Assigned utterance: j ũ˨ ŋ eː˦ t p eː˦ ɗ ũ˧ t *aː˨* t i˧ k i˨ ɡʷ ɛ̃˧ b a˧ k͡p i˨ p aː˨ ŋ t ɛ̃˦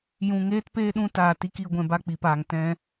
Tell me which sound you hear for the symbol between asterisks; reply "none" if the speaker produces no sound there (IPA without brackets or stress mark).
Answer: aː˨